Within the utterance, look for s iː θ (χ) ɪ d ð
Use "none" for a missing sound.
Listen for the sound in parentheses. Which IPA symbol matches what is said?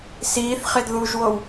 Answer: χ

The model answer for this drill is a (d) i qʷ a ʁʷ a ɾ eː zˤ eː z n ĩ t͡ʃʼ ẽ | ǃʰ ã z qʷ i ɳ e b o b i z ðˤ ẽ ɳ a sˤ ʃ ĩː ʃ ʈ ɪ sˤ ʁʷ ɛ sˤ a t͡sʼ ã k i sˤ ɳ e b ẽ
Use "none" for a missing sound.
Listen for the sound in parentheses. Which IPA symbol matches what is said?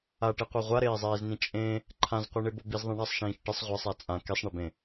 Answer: ʈ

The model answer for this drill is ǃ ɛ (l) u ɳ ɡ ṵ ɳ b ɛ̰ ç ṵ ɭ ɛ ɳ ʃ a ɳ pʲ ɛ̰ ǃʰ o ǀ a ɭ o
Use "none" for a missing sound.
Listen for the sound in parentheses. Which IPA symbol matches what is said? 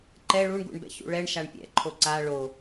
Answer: ɭ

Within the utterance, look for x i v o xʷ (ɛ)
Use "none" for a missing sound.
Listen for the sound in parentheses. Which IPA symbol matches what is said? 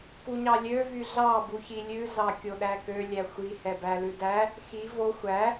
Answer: æ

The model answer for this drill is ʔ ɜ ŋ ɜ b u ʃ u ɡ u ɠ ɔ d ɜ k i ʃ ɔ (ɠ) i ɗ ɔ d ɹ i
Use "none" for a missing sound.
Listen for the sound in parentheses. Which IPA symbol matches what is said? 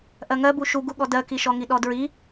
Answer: ŋ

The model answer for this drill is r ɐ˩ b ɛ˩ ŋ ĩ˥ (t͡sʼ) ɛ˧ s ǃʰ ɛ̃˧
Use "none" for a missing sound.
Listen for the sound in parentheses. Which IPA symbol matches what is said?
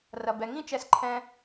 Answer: t͡ʃ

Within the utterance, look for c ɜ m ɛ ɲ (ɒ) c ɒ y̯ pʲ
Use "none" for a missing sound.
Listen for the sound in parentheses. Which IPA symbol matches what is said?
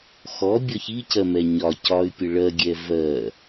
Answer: ɒ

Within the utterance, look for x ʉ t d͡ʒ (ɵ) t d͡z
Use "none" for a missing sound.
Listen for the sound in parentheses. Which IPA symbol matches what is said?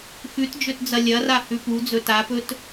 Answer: ɵ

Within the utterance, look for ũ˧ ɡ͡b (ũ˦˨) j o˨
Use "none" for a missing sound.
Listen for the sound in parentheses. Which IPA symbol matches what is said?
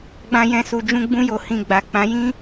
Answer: ũ˧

